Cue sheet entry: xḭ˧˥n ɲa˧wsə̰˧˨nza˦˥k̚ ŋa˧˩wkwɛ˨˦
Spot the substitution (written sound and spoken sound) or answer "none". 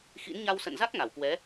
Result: none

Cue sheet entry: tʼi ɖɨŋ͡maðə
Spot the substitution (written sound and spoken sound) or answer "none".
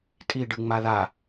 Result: ə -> a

